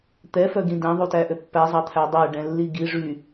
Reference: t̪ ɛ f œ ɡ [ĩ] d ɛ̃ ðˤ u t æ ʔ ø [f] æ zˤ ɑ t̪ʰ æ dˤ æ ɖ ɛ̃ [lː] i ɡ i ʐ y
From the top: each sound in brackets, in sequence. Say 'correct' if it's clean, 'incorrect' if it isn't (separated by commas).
correct, incorrect, correct